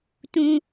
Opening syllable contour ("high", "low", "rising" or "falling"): high